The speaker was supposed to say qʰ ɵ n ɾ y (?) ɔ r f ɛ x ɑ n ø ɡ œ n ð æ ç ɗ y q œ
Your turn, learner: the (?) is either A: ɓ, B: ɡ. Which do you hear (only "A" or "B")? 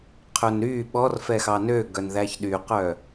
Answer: A